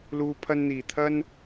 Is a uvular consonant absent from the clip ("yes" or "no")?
yes